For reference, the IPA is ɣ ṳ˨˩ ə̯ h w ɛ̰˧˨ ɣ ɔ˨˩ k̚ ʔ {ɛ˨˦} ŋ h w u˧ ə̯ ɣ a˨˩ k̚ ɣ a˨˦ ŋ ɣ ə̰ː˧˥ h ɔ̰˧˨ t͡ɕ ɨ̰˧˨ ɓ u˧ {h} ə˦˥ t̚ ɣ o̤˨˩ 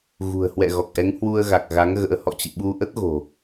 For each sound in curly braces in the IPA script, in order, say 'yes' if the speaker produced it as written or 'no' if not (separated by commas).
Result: yes, no